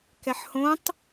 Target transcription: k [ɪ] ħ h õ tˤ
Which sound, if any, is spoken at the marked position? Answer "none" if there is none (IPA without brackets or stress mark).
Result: ɛ